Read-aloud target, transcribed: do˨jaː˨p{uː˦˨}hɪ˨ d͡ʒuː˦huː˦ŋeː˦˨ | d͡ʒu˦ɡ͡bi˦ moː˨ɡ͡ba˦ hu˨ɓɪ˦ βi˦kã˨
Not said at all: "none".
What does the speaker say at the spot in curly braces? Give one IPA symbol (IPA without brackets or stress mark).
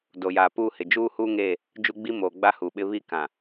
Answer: uː˦˨